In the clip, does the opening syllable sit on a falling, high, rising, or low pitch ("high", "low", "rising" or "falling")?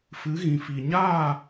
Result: rising